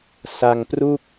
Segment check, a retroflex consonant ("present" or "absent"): absent